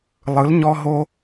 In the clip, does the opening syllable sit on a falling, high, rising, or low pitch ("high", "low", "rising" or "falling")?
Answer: rising